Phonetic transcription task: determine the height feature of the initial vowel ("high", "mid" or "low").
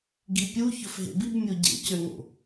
high